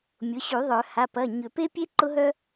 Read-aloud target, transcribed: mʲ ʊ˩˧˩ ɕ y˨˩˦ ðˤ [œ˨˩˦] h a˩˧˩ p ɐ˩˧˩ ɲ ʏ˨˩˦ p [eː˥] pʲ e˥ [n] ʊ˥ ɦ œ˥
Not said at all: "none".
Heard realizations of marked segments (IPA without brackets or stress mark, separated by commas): œ˨˩˦, e˥, ǃ